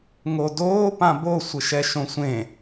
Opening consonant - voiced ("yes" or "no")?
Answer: yes